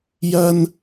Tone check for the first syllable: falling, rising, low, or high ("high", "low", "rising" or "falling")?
high